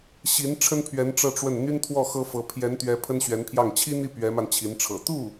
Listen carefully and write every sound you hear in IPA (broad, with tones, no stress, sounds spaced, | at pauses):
ɕ i˧˥ n ʈ͡ʂʰ ə˥ n pʰ ɥ ɛ˧˥ n ʈ͡ʂ ɤ˥˧ ʈ͡ʂ w ə˥˩ n n̪ y˥ n t̪ʰ w ɔ˥˩ x ɤ˥ f ɤ˧˥ pʰ j ɛ˧˥ n t̪ ɥ ɛ˧˥ pʰ ə˥ n ɕ ɥ ɛ˧˥ n pʰ j ɑ˥˩ ŋ t͡ɕʰ i˥ n̪ i˥˩ p ɥ ɛ˧˥ m a˧ n t͡ɕʰ i˧˥ n ʈ͡ʂʰ ɤ̰˨˩ t̪ u˥˩